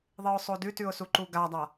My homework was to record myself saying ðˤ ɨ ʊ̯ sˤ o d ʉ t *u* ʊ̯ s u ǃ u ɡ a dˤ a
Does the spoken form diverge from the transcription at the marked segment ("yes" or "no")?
yes